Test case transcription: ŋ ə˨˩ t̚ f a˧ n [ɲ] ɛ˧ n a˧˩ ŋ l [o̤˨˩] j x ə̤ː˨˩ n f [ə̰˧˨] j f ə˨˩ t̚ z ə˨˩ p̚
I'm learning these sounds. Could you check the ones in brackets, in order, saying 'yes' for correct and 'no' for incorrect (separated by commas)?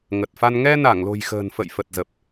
no, yes, yes